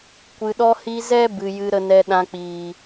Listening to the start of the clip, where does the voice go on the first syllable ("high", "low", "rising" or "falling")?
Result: low